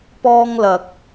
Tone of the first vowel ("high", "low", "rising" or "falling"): high